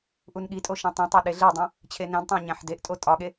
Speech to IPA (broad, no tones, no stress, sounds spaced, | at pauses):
ʔ u n ɠ i tʼ o ʃ ĩ tˤ ĩ tˤ e ɗ e ɮ e dˤ õ | t͡ɕʰ e n æ̃ d tˤ æ̃ ɲ æ̃ ħ d e ʔ tʼ o tʼ ɒ ɠ e